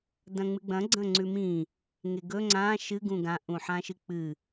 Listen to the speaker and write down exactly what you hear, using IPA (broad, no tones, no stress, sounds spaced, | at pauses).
d ɐ̃ ŋ͡m ɨ ɡ͡b ɐ̃ ɡ͡ǀ ɐ̃ ŋ͡ǀ ʉ m ĩ | ŋ e ɡ ɵ ŋ͡ǀ ã ʃ ɨ ɡ ũ ɡ ã ʔ ũ ħ ã ʃ ɨ k͡p ɨ